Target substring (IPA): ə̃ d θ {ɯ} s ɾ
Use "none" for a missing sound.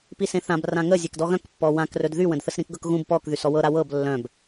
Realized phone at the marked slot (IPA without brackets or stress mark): ə